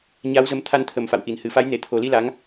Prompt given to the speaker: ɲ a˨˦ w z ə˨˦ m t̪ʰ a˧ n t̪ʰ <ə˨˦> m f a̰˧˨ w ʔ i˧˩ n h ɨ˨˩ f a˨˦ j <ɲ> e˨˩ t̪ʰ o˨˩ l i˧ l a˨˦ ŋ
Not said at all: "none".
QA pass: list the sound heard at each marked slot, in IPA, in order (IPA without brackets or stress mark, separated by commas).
ə˨˩, n